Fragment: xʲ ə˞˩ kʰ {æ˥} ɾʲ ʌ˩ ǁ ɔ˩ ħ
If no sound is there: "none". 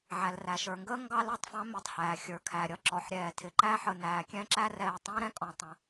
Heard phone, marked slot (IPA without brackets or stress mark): æ˩